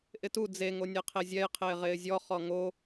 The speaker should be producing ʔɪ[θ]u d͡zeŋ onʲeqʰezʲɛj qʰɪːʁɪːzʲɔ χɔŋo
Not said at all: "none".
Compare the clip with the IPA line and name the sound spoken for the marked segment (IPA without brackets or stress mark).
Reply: t